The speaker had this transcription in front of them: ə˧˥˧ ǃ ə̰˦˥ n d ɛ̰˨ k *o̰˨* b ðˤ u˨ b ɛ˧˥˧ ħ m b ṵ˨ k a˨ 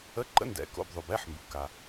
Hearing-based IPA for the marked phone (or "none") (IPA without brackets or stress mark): o̰˧˥˧